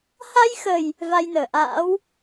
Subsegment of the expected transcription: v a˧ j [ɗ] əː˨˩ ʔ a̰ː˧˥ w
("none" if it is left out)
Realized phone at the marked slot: n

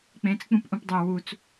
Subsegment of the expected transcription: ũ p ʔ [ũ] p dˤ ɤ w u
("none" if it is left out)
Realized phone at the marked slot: ũ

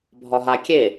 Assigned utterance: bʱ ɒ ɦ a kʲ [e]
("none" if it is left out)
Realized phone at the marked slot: e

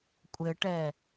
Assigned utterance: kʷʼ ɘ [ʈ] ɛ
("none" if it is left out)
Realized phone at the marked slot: ʈ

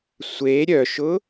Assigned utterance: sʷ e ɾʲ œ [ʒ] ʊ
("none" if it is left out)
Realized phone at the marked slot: ʃ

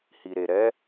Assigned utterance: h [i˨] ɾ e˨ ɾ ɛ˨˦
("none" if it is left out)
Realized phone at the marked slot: i˨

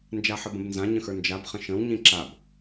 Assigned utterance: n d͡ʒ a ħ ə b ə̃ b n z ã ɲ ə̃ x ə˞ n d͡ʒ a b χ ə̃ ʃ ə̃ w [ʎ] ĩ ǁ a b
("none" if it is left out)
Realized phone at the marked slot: ɲ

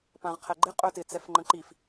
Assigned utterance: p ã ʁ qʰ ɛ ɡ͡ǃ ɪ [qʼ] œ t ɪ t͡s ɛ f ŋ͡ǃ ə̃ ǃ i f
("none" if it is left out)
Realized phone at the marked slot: qʼ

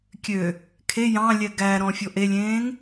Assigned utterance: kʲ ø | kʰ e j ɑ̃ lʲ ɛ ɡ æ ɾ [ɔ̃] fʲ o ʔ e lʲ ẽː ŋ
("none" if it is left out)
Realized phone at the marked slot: ɔ̃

